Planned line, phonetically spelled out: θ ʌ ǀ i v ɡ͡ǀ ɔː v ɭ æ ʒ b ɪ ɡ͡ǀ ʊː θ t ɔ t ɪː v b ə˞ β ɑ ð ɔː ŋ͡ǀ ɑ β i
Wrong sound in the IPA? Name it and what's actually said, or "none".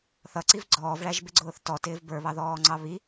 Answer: none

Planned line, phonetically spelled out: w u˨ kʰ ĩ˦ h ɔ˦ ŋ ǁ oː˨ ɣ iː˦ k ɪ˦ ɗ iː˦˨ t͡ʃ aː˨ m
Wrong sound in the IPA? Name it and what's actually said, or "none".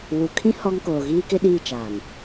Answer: ǁ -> k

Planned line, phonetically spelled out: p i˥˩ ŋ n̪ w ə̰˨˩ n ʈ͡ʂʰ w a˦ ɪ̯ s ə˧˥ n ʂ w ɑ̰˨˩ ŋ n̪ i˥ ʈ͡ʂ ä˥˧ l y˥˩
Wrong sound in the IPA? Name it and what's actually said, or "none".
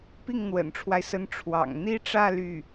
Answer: ʂ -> ʈ͡ʂʰ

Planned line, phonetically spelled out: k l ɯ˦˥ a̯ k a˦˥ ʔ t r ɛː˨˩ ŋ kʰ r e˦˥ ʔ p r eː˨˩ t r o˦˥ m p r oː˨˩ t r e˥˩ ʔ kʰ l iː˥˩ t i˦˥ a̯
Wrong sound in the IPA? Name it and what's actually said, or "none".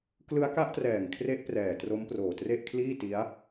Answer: eː˨˩ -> ɛː˨˩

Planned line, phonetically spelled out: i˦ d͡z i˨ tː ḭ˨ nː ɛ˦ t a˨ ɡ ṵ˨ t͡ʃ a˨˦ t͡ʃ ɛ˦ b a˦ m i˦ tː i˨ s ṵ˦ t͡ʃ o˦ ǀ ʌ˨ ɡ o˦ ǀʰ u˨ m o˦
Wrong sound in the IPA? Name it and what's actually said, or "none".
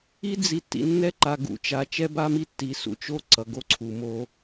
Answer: t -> ǃ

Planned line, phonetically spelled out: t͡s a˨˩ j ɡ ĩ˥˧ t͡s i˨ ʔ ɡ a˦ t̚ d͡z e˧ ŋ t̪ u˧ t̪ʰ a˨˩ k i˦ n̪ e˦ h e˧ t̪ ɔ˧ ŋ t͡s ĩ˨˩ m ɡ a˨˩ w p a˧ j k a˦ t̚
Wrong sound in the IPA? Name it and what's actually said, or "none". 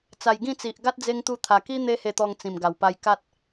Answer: none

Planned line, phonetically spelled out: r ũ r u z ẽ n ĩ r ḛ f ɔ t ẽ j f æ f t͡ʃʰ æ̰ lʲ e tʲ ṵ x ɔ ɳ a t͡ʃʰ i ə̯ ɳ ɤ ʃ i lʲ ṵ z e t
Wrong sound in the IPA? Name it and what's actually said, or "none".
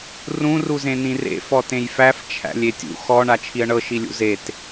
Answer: none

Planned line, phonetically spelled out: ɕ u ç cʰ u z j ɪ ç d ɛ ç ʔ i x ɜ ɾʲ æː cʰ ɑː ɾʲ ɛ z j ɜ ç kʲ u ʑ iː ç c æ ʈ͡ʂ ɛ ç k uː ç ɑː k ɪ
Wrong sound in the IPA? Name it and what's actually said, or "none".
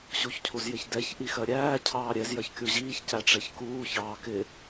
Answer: none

